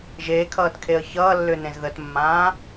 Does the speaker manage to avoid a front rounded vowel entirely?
no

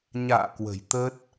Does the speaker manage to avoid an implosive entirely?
yes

